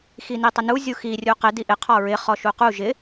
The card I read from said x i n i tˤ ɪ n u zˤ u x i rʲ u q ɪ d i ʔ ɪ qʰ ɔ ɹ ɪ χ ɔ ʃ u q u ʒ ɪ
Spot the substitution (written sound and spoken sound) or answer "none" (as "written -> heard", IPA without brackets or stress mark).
zˤ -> zʲ